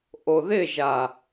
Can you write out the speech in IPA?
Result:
ʔoðɪʒa

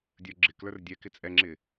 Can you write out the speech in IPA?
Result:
dʲə˞ɡ͡ǁɪklə˞r dʲɛkɪ t͡sʼɛŋ͡ǁɪ

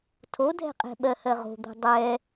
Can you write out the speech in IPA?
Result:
tʰodʱɛ̤qʼɛ̤ɓɜ hɜʁo̤d̪o̤ dˤɛ

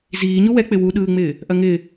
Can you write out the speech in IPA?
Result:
ziː ɲuwɛk͡pɪ wuɗɯːŋ͡mɪː | ʔɐŋɪː

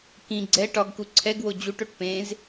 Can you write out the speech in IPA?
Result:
kĩ ɡ͡ǀɛ ʈɒɡku ǀʰɛɡwo d͡ʑuʈoʈ pẽz

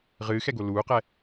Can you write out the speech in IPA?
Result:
ʁɨːxɛɡo luːqɛ

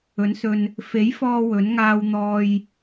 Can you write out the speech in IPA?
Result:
ɵ˨˥nsɵ˧n | fe˨˥jfɔː˧ wɵ˨˥n ŋaː˧wn̪ɔː˧j

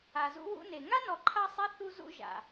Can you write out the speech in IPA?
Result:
a˨zṵ˦wṵ˦ne˨ ŋa˦nɔ˨ ǃʰa˦sˤɛ˦ θu˦zṵ˦ ʒa̰˨

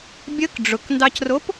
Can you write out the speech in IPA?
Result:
bʲək ɖ͡ʐʊkndɑcrop

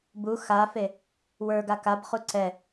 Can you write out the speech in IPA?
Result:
bu xafe | wə˞ɡa kabχu ǀɛ

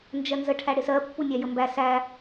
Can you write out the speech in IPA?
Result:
nd͡ʒɜnzə ʈʰæɽɪsɜ pːunʲæjəmbæ sæ

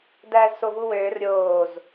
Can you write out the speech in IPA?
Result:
dæːzsovuwøːr ɾʲoːz

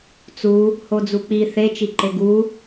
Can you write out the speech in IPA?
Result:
t͡su | hod͡zuk͡pi θe t͡ʃiǃeɡu

